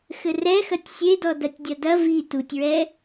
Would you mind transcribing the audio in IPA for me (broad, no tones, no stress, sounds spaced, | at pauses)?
x ɘ r ɛ x ɐ tʲ sʲ e d ɔ d ɐ tʲ dʲ ɐ d ɐ v i t u tʲ ɹ ɛ